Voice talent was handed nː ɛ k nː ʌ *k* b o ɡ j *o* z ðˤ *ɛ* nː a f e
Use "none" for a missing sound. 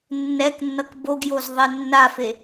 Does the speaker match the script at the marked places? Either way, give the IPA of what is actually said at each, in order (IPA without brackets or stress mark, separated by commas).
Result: k, o, ɛ